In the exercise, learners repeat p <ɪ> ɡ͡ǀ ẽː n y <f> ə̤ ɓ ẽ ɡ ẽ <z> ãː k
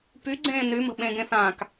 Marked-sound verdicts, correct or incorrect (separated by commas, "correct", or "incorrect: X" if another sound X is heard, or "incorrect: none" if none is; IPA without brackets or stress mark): incorrect: y, incorrect: m, incorrect: θ